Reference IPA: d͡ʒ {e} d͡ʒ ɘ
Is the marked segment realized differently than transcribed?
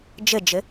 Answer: yes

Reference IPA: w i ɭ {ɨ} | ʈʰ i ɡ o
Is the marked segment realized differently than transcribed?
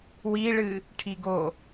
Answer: no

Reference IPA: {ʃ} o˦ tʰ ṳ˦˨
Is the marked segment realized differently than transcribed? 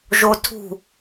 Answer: yes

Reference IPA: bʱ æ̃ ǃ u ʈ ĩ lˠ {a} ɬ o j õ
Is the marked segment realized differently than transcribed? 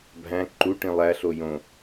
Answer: yes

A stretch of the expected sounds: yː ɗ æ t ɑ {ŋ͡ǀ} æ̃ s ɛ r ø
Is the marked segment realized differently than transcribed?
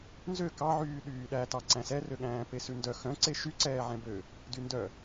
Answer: yes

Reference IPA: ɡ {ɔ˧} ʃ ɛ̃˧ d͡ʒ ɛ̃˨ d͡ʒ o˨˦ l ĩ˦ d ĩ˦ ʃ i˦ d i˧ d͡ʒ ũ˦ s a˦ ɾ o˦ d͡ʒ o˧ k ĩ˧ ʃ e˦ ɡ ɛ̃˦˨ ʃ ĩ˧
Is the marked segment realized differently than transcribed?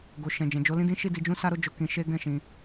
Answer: yes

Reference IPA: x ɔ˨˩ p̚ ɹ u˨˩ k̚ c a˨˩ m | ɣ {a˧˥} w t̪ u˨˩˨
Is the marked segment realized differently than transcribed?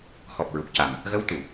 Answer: yes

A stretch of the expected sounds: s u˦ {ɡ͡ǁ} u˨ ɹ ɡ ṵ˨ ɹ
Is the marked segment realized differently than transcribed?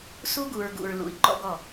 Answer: yes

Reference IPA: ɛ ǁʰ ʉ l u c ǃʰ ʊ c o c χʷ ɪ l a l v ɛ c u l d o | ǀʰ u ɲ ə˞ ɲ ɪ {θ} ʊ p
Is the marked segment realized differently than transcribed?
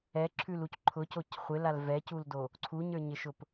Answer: yes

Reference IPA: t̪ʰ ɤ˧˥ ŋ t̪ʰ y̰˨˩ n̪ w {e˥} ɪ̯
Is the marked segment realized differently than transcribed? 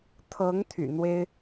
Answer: no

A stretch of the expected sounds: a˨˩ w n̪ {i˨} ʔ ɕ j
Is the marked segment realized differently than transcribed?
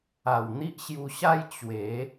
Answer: yes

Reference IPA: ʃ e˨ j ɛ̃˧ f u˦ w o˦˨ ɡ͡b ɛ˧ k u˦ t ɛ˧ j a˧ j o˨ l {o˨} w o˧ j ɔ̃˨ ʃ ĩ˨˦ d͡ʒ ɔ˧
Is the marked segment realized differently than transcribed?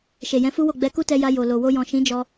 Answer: no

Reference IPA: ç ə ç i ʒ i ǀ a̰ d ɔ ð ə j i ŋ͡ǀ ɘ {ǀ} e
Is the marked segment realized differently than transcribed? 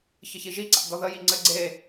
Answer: yes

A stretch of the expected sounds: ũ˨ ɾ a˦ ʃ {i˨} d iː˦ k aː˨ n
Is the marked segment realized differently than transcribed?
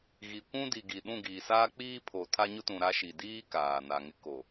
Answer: no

